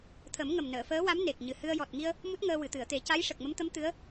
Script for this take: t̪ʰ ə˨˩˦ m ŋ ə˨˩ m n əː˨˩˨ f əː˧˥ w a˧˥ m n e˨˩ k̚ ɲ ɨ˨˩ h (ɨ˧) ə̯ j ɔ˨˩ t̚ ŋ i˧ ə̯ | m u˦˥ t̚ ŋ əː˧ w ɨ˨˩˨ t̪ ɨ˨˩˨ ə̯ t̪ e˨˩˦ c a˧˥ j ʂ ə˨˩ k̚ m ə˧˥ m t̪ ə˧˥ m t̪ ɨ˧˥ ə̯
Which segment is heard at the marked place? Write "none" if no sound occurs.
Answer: ɨ˧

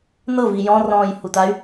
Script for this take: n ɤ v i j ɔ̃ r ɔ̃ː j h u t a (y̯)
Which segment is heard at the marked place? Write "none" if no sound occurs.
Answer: y̯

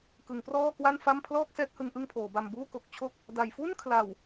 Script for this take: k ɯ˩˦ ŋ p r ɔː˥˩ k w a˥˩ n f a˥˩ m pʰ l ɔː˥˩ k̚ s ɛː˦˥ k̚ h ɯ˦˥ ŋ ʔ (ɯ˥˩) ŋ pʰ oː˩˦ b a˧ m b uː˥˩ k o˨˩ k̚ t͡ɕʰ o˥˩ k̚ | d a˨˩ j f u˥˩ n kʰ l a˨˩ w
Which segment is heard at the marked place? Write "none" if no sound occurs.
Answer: ɯ˥˩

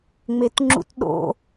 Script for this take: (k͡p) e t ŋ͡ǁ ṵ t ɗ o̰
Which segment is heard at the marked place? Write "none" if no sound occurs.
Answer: ŋ͡m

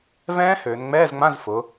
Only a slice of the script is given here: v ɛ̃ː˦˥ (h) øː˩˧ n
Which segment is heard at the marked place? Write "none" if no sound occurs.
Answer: h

